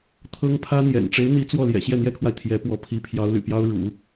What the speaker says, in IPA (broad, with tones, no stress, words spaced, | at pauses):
t̪ʰɤ˥ŋ pʰä˥n̪jɛ̰˨˩n ʈ͡ʂe˧˥ɪ̯n̪i˧˥ t͡swɔ˥˩ ljɛ̰˨˩ɕjɛ˥˩n̪jɛ˥kʰwa˨ɪ̯ t̪ʰjɛ˧˥pwɔ˧˥ pʰi˧˥pʰjɑ˧˥ʊ̯ly̰˨˩pjɑ˥ʊ̯ ɻṵ˨˩˦